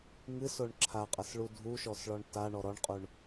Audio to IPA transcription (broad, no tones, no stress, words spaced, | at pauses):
ŋɨsoɳ ǁʰaqʼɐsɭu dʱuʃɔsɭɔɳ taɳɔ ɾɔɳqʼuɳ